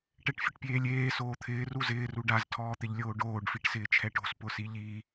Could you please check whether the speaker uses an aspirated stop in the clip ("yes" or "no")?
yes